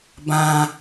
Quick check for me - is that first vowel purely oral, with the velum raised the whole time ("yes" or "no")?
no